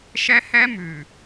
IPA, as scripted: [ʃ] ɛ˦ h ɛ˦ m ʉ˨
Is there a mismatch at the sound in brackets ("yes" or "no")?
no